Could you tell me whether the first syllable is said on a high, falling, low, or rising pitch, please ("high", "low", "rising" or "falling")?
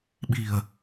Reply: low